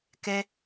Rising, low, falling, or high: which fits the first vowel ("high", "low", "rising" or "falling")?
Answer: high